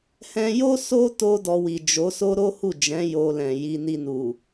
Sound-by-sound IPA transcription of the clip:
h ɛ̃˧ j o˦ s o˧ t o˦ d ɔ˧ w i˨ d͡ʒ o˨˦ s o˦ ɾ o˦ h u˦˨ d͡ʒ ɛ̃˨˦ j o˧ l ɛ̃˨ j i˧ n i˧ n u˨

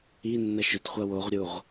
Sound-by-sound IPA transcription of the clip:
i nː ʌ ʃ ʏ t χʷ a w o ʁ ɾʲ u ʁ

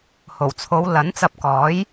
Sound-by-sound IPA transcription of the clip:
h o˨˩ w t͡sʰ o˨˧ w l ɐ˨˥ n t͡s ɐ˧ p̚ k ɔː˨˥ j

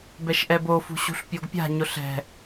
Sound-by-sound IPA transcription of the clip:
b ɛ ʃ ʔ ɛ b o f ṳ ɕ ṳ ɬ pʲ o ɡ pʲ a̤ ɲ ʊ ɬ ɛ̤

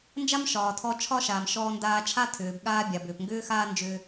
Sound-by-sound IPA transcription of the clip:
n d͡ʒ a˥ m ʃ ɒː˩ tʰ ɔ˧ t͡ʃʰ ɒ˥ ʃ aː˩ m ʃ ɔː˧ n d aː˧ t͡ʃʰ a˥ tʰ ʏː˩ b ɠ aː˥ bʲ a˩ b ʏː˩ p ŋ ɡ ʏː˥ x aː˥ n d͡ʒ ʏː˧

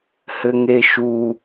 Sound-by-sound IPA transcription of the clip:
h ɘ ŋ e ʃ u

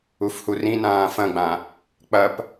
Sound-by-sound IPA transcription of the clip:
u f h u r ĩ n ãː f ɐ̃ ɡ͡b ã | k͡p ɐ p

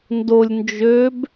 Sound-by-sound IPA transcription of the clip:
n d o lʲ n d͡ʒ ø b

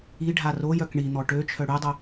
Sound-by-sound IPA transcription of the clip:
i ɖʱ a r o j œ k ɳ i n̪ ɔ ʈ ø t͡ʃʰ œ ɽ y dˤ œ

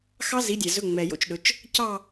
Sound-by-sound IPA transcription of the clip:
x ɑ˦˥ z i˨˦ dʲ æ˨ z ɵ˧˥˧ ŋ͡m ɛ˨ j o̰˥˧ t͡ʃ ɗ ɵ˨˦ t͡ʃ | c ɑ˥˧

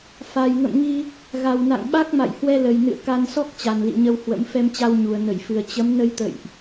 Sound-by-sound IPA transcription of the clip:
f a˨˩ j ŋ ə̰˧˨ m ŋ i˧ | ɣ a˨˩ w n a̰˧˨ ŋ ɓ a˦˥ k̚ m a̰˧˨ j h w ɛ˧ l ə˨˩ j n ɨ̰˧˨ ə̯ k a˧ n s ɔ˦˥ k̚ t͡ɕ a˨˩ n l ḭ˧˨ ɲ ə˧ w h w ə̰˧˥ m f ɛ˧ m t͡ɕ a˧ w ɲ u˨˩ ə̯ n ə˧˩ j f ɨ˨˩ ə̯ t͡ɕ ə˨˦ m n ə˧ j t̪ ə̰˧˨ j ʔ

